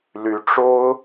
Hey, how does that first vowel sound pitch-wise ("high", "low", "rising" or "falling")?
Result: rising